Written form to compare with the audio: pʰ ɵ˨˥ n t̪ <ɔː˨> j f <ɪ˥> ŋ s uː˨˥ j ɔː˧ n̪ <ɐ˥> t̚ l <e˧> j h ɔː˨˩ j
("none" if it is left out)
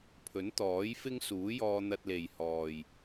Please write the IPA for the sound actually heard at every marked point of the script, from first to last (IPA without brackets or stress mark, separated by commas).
ɔː˨˥, ɪ˥, ɐ˧, e˨˩